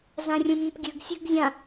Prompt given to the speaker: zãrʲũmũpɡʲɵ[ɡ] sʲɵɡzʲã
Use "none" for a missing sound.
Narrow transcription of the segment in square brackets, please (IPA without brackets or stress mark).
ɡ